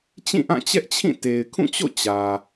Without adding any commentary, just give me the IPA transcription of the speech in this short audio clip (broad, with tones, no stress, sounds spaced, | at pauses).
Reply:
t͡ɕ ĩ˦˨ ʔ ã˦˨ t͡ɕ ɛ˦ ʔ t͡ɕʰ ĩ˦˨ t e˨ ɪ̯ kʰ ũ˦˨ t͡ɕ o̰˦˨ t͡ɕ ä˨